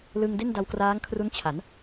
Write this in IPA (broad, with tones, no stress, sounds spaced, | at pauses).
l ɯ˧ ŋ d e˥˩ n d a˧ w k r aː˦˥ ŋ kʰ r u˦˥ n t͡ɕʰ a˩˦ n